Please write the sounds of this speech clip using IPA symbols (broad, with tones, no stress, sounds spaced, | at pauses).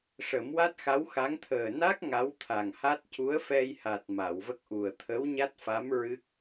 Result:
ʂ ə˨˩˦ m w a˦˥ t̚ x a˧˥ w x a˧˥ ŋ t̪ʰ əː˨˩ n a˦˥ k̚ ŋ a˧˥ w t̪ʰ a˨˩ ŋ h a˦˥ t̚ c u˧˥ ə̯ f ɛ˧ j h a˨˩ t̚ m a˨˩˨ w v ə˦˥ k̚ ʔ u˨˩ ə̯ t̪ʰ ə˧˥ w ɲ a˦˥ t̚ f a˧˥ m ɹ ɨ˦˥ k̚